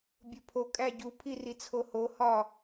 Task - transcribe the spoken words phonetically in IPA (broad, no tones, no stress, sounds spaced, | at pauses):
bʲ o pʰ o kʼ æ ɟ u pʰ i r i t͡sʰ o h o h ɒ